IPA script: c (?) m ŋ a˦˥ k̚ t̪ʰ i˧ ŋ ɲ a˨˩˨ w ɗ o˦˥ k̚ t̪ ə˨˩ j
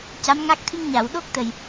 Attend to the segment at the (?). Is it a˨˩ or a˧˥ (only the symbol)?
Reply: a˧˥